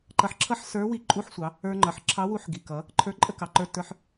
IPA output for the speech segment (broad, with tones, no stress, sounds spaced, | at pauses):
ǃ ʌ˧ ħ ǁʰ ʌ˥ ħ s ə˞˧˥ w i˧˥ ǃʼ u˧˥ ħ sʷ ɑ˩˧ | ə˞˧ ŋ͡ǃ ʌ˩˧ ħ ǁʰ ɑ˧˥ w u˧˥ ħ ɡ i˩ k ʌ˩˧ | ǃʰ ə˞˧˥ ǃʼ ə˥ k ɑ˩ ǃ ə˞˧ t ə˞˧ ħ